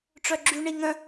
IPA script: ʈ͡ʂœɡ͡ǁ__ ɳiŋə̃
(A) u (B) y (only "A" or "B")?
B